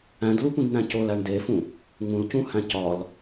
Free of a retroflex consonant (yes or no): no